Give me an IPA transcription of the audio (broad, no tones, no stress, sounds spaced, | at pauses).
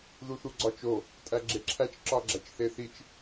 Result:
ð u θ u ɡ͡ǀ ɒ t͡ʃ o | tʼ æ ɡ͡ǁ e ǁʰ æ t͡ʃ ǁ ɒ ɡ͡ǁ æ t͡ʃ θ e θ i t͡ʃ